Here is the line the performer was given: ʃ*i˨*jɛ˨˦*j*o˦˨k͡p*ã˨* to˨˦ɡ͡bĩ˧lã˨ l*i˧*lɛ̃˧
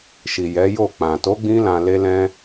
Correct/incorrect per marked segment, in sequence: correct, correct, correct, incorrect: e˧

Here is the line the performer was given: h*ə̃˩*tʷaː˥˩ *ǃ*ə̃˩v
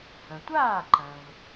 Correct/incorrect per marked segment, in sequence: correct, correct

